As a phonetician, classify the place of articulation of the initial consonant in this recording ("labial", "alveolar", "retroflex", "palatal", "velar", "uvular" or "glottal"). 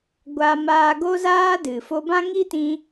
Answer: velar